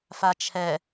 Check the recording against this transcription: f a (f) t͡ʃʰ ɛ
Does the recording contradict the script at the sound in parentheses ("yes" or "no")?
yes